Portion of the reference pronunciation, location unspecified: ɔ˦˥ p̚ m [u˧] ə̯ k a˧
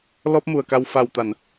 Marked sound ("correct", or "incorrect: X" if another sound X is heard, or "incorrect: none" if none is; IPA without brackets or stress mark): incorrect: u˨˩